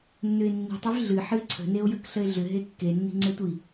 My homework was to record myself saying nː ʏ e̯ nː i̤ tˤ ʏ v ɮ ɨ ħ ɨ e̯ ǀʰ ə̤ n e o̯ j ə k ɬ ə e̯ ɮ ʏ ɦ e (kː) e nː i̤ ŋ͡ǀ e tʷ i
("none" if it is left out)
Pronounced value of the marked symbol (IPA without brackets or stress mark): kː